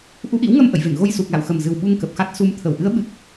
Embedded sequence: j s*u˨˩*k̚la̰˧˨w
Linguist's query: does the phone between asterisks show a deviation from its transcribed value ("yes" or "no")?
no